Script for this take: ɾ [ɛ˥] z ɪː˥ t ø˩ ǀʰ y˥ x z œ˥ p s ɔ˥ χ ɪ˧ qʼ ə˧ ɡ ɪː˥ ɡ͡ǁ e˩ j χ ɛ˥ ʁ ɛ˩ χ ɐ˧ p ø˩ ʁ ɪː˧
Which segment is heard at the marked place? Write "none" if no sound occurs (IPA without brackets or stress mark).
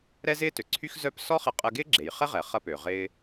ɛ˥